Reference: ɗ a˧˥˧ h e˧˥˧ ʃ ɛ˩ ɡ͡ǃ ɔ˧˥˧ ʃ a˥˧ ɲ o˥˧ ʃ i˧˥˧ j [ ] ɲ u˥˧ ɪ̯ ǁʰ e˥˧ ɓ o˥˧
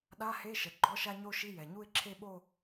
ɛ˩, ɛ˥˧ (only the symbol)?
ɛ˩